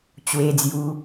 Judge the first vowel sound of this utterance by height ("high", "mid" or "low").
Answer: mid